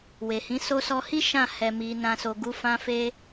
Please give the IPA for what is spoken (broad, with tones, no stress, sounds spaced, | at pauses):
w e˨ h ĩ˨˦ s o˧ s ɔ˧ h i˦ ʃ ã˦˨ h ɛ˨ m i˨ n ã˨ s o˨ ɡ u˧ f ã˧ f e˧